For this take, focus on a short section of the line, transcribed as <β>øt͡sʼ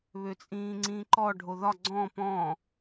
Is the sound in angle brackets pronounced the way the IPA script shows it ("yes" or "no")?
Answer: yes